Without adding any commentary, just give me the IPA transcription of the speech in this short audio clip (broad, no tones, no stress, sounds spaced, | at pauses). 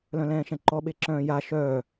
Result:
l œ̃ l ɛ̃ː ʃ ɛ̃ ǃ ɔ ɓ e ǁ œ̃ː j a ʃ œː